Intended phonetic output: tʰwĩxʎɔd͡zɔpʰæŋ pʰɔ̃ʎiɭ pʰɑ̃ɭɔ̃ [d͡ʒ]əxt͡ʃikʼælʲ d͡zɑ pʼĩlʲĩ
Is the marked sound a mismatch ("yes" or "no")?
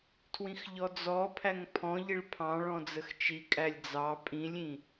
yes